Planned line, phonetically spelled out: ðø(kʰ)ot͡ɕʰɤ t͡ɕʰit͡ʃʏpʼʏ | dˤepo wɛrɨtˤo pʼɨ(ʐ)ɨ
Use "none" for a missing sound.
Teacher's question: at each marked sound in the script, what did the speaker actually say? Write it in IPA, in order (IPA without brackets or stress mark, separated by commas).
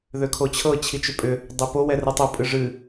kʰ, ʐ